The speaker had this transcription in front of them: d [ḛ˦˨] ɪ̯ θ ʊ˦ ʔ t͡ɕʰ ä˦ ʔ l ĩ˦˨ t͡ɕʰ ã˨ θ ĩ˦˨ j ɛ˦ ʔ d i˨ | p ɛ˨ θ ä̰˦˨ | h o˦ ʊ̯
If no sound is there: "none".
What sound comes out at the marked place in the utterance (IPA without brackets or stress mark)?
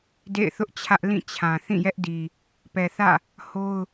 ḛ˦˨